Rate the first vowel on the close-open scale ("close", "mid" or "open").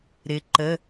close